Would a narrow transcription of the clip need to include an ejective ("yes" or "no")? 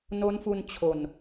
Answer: no